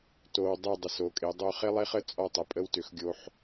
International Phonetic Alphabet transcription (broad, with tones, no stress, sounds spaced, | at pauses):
t o˧ w dˤ e˥˧ dˤ ə˧˩ s o˩˧ kʼ e˩˧ dˤ o˥ χ e˥ lˠ e˥ χ ə˥ t͡sʼ ɔ˥˧ tˤ ə˩˧ pʼ ə˧ w t ʏ˩˧ x ɡʲ o˧ ħ